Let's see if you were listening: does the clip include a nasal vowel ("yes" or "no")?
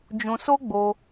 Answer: yes